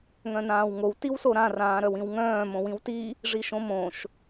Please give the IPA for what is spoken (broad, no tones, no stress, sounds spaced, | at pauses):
ŋ œ̃ n ãː w ŋ o w t i w s o ɾ ã r ãː ɾ œ w ĩ w ŋ œ̃ː m õ w ĩ w t i | ʐ i ʃ õ m õ ʃ